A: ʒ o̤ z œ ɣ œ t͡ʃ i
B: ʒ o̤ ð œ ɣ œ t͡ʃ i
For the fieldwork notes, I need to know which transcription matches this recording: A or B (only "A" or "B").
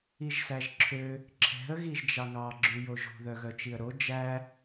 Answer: B